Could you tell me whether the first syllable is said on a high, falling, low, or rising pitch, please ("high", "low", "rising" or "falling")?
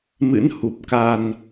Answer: rising